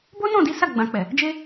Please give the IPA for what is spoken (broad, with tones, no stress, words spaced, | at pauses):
bo˦nɔ̃˦˨di˨˦ sa˦˨ ɡ͡bã˨k͡pɛ˨ | d͡ʒe˧